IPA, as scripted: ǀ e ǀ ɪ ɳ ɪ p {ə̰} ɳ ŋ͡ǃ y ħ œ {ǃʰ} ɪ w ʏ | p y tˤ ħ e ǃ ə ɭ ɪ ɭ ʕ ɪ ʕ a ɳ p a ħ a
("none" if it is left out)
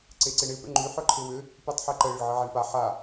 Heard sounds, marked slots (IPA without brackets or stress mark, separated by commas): ə̰, ǃʰ